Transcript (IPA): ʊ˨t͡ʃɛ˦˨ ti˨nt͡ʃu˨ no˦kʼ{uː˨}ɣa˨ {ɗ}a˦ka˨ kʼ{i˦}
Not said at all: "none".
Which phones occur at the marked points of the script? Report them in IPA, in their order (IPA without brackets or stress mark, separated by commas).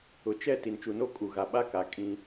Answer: u˨, ɓ, ĩ˦